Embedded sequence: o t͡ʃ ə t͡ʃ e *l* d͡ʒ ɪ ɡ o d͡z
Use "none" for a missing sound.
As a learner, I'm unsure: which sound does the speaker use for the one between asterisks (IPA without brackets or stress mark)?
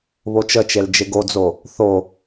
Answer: l